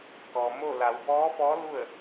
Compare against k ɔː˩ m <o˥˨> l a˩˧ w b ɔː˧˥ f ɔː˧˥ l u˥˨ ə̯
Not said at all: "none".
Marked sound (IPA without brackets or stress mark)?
o˥˨